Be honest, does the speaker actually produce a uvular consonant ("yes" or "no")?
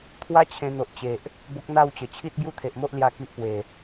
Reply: no